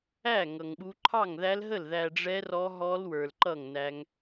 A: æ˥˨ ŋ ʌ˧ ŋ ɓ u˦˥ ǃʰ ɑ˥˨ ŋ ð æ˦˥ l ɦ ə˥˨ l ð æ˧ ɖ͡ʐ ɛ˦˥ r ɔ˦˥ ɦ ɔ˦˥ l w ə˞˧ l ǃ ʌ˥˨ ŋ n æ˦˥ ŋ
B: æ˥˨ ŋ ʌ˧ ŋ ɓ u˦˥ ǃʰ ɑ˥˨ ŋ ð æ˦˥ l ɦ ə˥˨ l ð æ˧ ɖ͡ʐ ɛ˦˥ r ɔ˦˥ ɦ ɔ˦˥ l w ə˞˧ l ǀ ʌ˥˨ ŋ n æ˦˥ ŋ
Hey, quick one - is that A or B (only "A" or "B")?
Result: A